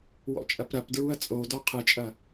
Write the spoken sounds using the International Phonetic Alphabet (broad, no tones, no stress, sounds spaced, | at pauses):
w ɔ̰ t͡ʃʼ ɐ p ɾ ɐ p d ɹ u ɐ̯ t͡sʼ o d ɔ qʰ ɨ t͡ʃʼ ɐ